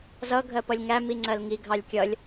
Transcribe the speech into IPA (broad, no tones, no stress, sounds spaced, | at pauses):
z ʌ ɡʱ ɜ p ʌ lʲ ŋ æ m i ŋ͡ǀ ɜ l ŋ i ɡʱ ɑ lʲ kʲ ʌ lʲ